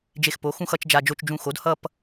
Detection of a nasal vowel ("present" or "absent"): present